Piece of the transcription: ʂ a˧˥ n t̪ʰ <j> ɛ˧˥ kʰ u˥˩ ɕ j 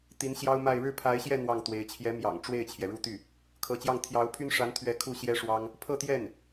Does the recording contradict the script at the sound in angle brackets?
yes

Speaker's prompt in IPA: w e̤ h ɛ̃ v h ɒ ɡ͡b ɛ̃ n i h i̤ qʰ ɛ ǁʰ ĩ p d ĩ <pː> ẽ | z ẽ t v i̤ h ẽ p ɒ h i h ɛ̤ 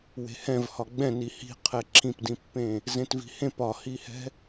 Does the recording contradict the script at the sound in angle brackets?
no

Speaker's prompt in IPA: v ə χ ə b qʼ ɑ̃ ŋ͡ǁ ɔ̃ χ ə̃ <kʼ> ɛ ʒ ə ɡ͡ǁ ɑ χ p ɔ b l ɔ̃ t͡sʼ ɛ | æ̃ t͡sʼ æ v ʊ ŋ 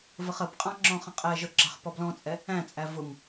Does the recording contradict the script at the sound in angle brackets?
yes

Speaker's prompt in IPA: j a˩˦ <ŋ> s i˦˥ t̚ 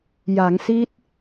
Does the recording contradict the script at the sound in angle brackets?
no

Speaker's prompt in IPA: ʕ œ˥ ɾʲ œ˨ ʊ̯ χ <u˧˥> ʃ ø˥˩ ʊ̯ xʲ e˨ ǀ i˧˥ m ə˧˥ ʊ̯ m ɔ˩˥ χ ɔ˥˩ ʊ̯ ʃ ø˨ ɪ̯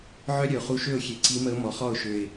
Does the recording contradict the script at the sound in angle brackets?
no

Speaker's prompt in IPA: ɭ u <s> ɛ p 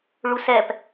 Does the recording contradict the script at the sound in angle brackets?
no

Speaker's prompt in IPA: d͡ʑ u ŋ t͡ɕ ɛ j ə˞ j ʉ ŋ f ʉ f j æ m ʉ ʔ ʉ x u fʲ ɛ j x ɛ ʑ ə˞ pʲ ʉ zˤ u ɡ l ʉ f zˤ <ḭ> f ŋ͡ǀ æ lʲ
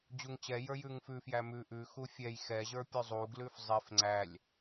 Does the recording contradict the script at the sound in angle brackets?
yes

